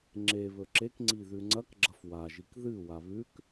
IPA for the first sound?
ŋ͡ǁ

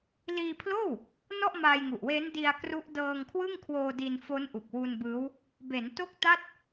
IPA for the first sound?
l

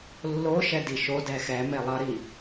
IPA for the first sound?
lː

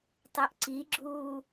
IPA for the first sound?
tˤ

